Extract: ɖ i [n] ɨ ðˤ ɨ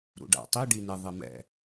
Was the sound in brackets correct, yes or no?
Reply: yes